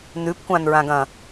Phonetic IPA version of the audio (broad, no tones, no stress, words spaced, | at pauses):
nʉpkʷãnɹãɡɐ̃